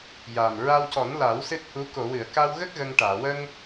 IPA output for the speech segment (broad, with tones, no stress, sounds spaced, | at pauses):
j a˨˩ m ɹ a˧ w c ɔ˨˩˦ n l a˨˩˦ w s ɨ˦˥ t̚ h u˧˥ k o˨˩˨ w ɨ˨˩˨ ə̯ k a˧ w ɣ ə˦˥ k̚ ɣ ə˧ ŋ ʈ aː˨˩˨ w ə˧ ŋ